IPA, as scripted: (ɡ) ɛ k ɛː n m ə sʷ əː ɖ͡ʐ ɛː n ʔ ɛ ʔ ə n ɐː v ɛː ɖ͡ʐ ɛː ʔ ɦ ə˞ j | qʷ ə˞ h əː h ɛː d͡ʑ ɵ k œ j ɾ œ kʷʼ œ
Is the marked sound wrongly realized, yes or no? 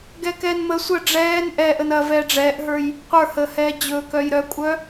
no